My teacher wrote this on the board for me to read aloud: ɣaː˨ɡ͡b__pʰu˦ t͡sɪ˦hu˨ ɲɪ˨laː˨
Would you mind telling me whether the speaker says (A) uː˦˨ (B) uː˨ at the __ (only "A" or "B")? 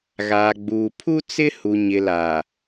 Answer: B